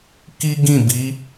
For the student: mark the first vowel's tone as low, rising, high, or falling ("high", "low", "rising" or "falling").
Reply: high